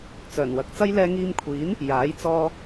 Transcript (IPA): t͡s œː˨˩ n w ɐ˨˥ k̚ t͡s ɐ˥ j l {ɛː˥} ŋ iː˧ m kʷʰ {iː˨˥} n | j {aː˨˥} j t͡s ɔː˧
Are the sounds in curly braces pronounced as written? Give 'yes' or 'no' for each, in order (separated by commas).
no, yes, yes